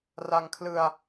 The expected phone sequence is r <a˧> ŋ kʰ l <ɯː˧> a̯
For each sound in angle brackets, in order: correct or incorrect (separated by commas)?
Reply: correct, incorrect